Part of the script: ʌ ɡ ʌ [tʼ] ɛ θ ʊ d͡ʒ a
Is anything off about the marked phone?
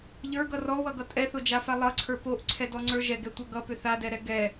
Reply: no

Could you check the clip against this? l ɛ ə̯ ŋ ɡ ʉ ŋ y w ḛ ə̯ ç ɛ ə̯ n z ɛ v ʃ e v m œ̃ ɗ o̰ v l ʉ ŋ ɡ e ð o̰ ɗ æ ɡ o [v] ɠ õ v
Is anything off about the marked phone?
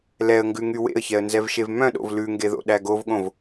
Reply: no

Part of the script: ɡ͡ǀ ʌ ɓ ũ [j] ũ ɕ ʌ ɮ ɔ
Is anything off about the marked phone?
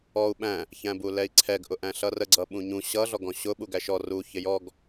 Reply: yes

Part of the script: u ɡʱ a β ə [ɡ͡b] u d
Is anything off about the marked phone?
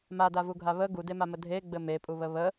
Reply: yes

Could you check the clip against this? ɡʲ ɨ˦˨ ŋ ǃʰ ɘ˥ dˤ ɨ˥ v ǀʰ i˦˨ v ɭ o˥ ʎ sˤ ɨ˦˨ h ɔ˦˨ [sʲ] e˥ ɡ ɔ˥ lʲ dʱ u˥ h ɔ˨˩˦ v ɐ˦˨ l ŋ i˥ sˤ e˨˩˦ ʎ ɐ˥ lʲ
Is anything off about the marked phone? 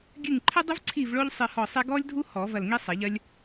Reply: yes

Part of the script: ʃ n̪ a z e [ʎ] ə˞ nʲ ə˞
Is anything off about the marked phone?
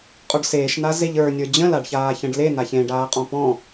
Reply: no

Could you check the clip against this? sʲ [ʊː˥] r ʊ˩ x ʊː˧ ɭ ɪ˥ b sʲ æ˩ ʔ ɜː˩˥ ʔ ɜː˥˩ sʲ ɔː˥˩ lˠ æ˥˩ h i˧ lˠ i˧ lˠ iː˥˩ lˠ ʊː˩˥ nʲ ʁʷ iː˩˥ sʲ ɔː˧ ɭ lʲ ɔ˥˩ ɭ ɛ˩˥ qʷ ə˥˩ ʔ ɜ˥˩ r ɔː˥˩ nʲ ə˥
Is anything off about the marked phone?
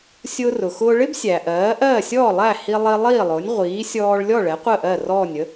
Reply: yes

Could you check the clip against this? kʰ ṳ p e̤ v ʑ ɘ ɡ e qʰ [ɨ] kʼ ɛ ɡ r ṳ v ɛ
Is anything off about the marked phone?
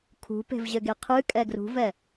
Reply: no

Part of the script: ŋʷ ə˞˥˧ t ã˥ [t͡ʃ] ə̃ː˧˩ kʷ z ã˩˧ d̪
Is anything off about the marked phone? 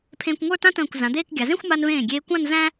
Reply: yes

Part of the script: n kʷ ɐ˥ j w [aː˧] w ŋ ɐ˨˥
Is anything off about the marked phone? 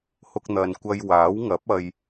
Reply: yes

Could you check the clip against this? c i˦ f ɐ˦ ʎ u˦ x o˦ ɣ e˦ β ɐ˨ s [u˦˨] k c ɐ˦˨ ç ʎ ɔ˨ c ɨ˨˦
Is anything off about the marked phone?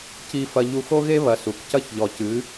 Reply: yes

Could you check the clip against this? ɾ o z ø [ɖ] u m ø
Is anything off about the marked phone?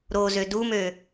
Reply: yes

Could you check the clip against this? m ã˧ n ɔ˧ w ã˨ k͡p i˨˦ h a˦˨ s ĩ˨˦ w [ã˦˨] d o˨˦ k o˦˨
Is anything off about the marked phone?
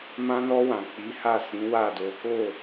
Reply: yes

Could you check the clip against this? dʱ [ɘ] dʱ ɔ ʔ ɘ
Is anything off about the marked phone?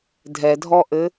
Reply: yes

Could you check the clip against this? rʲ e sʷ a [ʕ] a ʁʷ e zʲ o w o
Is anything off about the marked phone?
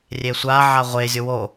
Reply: no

